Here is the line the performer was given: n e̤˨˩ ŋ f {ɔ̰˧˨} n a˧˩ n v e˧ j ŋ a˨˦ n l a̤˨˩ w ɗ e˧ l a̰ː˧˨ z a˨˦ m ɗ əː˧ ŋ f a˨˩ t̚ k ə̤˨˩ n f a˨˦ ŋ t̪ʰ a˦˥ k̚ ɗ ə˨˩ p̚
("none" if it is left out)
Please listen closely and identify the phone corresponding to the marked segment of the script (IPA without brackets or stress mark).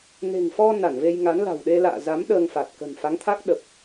ɔ˧